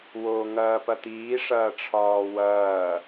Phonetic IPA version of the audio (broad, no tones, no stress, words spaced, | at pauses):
woːŋɐːpɐt̪iː ʂɐːʈ͡ʂʰɒːwɐː